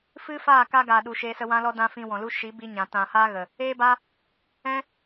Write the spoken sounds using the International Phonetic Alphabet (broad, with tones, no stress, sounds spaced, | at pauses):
f ɨ˦ f aː˦˨ k a˦ ɡ aː˨ ɗ u˨ ʃ eː˧ s ə˧ w ã˦ l ɔ˦ d ã˧ f ĩ˧ w ɔ̃˨ l u˦ ʃ i˨˦ b i˧ ɲ ã˨ t ã˨ h aː˦ ɣ ə˨ | eː˦ b aː˦ | ɛ̃˦